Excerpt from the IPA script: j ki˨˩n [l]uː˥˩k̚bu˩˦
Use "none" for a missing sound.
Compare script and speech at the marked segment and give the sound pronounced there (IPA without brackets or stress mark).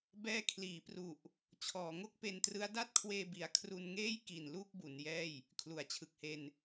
l